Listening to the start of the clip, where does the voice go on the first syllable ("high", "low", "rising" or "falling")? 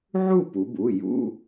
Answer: falling